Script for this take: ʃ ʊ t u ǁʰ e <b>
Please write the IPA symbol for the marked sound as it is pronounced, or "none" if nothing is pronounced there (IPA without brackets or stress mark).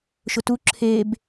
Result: b